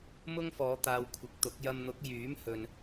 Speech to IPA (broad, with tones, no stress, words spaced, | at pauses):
mʊ˥ŋfɔː˨˧ t̪aː˧wkʷʰɪ˨˥k̚t̪ʊ˨˥k̚ jɐ˧mn̪ʊ˨˥k̚ jyː˨˥mhɵ˨n